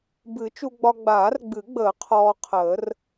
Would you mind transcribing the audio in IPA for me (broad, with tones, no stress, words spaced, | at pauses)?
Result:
bɨ˨˩˦t͡ʃu˧ɡ͡bɒ˧ ɡ͡baː˨˩˦rɡ͡bɨ˨˩˦ɡ͡bəː˨˩˦ qʰɔː˧qʰəː˨˩˦r